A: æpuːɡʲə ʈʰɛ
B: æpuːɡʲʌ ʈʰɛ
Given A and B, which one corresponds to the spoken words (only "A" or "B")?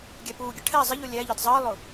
A